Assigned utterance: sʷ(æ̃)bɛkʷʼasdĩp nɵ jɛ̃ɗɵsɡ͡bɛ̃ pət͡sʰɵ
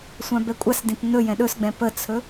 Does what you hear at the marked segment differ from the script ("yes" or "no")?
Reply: yes